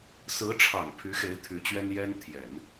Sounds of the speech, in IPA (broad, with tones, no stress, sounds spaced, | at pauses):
s ɹ̩˧˥ ʈ͡ʂʰ ɑ˨˩ ŋ pʰ y˧˥ x e˧˥ ɪ̯ t̪ʰ y˧˥ t͡ɕ ɥ ɛ˥ n j ɛ˥ n t̪ʰ j ɛ˨˩˦ n